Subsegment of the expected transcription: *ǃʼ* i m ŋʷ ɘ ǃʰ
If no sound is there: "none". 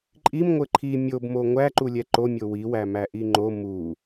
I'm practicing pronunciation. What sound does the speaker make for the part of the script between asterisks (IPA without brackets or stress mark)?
ǃʼ